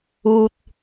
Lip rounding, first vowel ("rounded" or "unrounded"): rounded